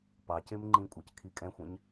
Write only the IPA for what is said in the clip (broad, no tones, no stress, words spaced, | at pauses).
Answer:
pɑcem ŋ͡ǃĩkʷʼɑckʰi kʼɛ̃xʷɛ̃ɲ